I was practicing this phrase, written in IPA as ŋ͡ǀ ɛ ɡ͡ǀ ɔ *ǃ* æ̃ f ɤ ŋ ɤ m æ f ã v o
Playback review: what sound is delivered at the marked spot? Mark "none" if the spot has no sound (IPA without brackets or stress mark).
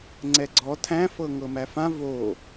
tʰ